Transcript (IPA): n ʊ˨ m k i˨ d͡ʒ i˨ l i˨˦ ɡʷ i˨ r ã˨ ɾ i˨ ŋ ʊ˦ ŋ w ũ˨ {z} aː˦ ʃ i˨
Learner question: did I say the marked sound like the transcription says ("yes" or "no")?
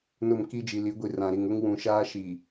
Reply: no